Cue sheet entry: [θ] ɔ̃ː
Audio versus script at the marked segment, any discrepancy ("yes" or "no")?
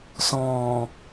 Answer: yes